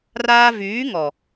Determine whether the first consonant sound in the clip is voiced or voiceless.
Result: voiced